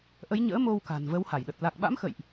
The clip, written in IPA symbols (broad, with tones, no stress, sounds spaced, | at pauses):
ʔ ə˨˦ j ɲ ə̰ː˧˥ m o˧ w k a̤˨˩ n v ə˨˦ w h a˧˩ j ɗ ə˨˩ t̚ l a˨˩ k̚ ɓ a̰˧˥ m x ə̰˧˨ j ʔ